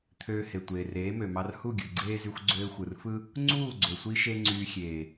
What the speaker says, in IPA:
t̪ʰ øː˧ h e˨ tʷ eː˨ r eː˨˦ m ø˨ m ɑ˧ r h u˦˨ ɡʲ ɯ˨ ɡ͡ǀ eː˦ z y˧ xʷ ɡ͡ǀ øː˧ xʷ ɯ˨ r f ɯ˦ | ŋ͡ǀ uː˦˨ ɡ͡ǀ ø˨ sʷ i˧ ʃ e˦ ŋ͡ǀ yː˧ xʲ eː˨

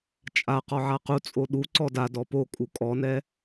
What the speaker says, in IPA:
t͡ʃʼ a q ɔ ʕ a q u t͡sʼ o ɗ u ǀ ɔ d a d ɔ p o kʼ u kʼ ɔ n ɛ

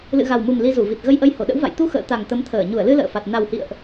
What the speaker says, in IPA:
l ɨ̰˧˨ ɣ a˨˩ w m u˨˩ m l i˧ z u˧˩ v i˨˩ t̚ ɣ ə˧ j ʔ ə˧ j h o˧˩ ɗ ə̰˧˥ w v a̰˧˨ j t̪ u˧ x ə̰ː˧˨ t̪ a˨˩ ŋ t̪ ə˨˦ m t̪ʰ əː˧˩ ɲ u˧˩ ə̯ l ɨ˧ l ə̰ː˧˨ f a˨˩ t̚ n a˨˩ w h ḭ˧˨ ə̯ ʔ

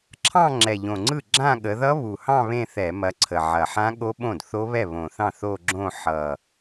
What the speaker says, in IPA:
ǁʰ ɑ̃˥˧ ŋ͡ǁ ɛ˨˩ ʎ õ˨˩ ŋ͡ǀ ɯ˥˩ ɡ͡ǁ ã˥˧ ɠ ə˨˦ ð ʌ˦˥ β u˨˩ h ɑ̃˥˧ β ẽ˥˧ θ ɛ˧˩˧ m ɐ˨˦ ǀʰ ə˨˩ ʕ ɐ˨˩ ħ ã˦˥ ɠ o˦˥ ɓ õ˥˩ d θ o˦˥ β ɛ˥˩ β õ˨˩ θ ɑ̃˥˩ θ o˥˧ ɡ͡ǁ õ˥˧ ħ ʌ˨˩

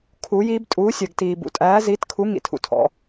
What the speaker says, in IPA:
kʰ uː˩˧ j iː˩˧ b tʼ uː˩˧ sʲ ɜ˩ ɡ t iː˩ b ṵ˩ tʼ æː˩˧ z iː˩˧ t kʰ u˩˧ ŋ ḭ˩ tʰ ṵ˩ tʰ ɔ̰˩

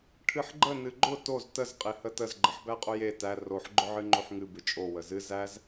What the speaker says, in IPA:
ʈʰ ɨ ħ ɡ͡ǃ ə n ɨ ɡ͡ǃ ʊ t o z t ə z qʼ e h ə t ə z ɡ͡ǃ ə ħ b æ qʼ ʊ j e t æ r o ħ ɡ͡ǃ ʊ ʕ ɨ ŋ͡ǃ o ħ ŋ ɨ b ɨ t͡ʃʼ o w ə z ɨ z æ z

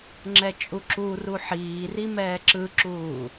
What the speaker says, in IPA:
ŋ͡ǁ ɛ t͡ʃʼ u ǁ u r u ħ iː r i m ɛː ǁ ɯ ǁ uː

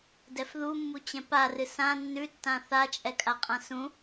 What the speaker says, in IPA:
d ɛ f ð u mː u t͡ɕ ɛ̃ p a r ɨ s ã nː ʉ tː ã θ a t͡ʃʼ ɛ kʼ a qʼ ã s ũ

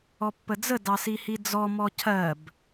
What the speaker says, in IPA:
ɔ pː ə d͡z ə d ɑ s i h i d͡z ɔ m ɔ cʰ ɜ b

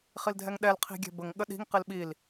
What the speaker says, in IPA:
χ i l dʱ ɛ ŋ ɗ ɛ l qʰ i̤ ɡʲ ɛ̤ b ə ŋ ɠ ə ɗ i̤ ŋ q i l ɓ i l

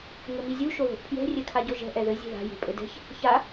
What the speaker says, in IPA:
ŋ ɘ m i zʲ u ʃ o ð o̤ ʔ pʰ j ɛ̤ rʲ ɛ kʰ a ɟ o ʒ ɛ̤ ʔ ɛ ð ɘ zʲ e̤ ð a̤ j e̤ pʼ ɘ d ɛ̤ ç | ç a

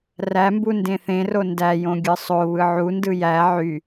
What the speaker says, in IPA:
r æ m b u n d ẽ θ ẽ r o n d æ j õ ɡʲ ɯ sˤ o β ɯ ʕ u n d ɯ j æ ʕ y

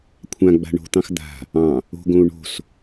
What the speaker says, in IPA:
kʷʰ ã ɡ͡b a̤ ɳ o̤ t̪ ɑ̃ x d̪ a̤ | ɑ̃ | o̤ ɡ õ u̯ ɳ o̤ s

